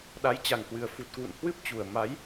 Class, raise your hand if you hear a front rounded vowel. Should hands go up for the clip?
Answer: no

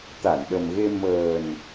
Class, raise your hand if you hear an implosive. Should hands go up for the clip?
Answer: yes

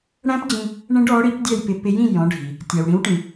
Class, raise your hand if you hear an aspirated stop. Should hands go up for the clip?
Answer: no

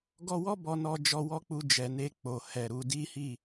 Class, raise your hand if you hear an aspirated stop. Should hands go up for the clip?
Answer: no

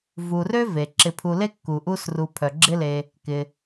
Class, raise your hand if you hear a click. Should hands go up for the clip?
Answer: yes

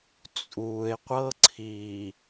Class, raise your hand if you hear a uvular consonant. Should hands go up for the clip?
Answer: yes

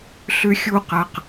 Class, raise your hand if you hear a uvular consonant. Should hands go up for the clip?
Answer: yes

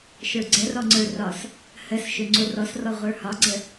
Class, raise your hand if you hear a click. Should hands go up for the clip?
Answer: yes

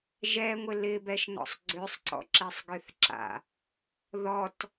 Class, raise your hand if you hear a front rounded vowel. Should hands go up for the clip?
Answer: yes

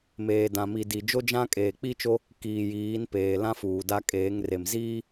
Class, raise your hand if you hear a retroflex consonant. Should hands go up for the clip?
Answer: no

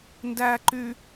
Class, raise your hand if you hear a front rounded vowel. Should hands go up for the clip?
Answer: yes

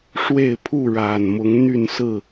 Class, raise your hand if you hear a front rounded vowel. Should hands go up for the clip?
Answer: yes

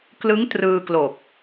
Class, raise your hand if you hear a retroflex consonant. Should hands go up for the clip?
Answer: no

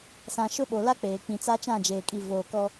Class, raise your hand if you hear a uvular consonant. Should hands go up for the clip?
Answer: no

